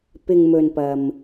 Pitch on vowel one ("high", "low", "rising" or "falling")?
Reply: low